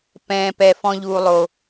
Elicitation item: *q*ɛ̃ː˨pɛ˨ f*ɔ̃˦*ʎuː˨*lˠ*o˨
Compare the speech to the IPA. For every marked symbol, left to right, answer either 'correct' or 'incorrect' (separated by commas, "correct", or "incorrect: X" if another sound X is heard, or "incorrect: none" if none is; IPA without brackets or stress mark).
incorrect: p, correct, correct